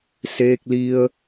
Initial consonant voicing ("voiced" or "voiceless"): voiceless